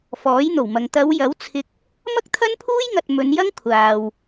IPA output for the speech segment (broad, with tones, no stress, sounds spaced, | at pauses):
f ɔː˨˥ j n̪ o˨˩ w m ɐ˨ ŋ t̪ ɐ˨˧ w j ɐ˨˥ w t͡sʰ ɪ˨ k̚ | m ɐ˥ k̚ t̪ʰ ɐ˥ n pʰ uː˥ j ŋ ɐ˨ t̚ m ɵ˨˧ n j ɐ˥ ŋ kʷʰ aː˨ w